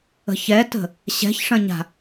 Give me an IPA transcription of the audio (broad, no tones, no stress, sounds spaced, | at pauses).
ə̤ ç ɛ t ə̤ | ɕ ɛ̤ ç ʂ ɐ̃ ɲ a̤